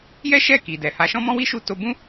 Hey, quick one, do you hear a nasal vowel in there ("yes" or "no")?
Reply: yes